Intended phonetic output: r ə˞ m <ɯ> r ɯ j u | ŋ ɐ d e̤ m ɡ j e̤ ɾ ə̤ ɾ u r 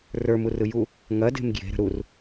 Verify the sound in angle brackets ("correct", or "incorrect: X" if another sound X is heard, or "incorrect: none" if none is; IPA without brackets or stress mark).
incorrect: u